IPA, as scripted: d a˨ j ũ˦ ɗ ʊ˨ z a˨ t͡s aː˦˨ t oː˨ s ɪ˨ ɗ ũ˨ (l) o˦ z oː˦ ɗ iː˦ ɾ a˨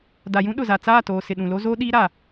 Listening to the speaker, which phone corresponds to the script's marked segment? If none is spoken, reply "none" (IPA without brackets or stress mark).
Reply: l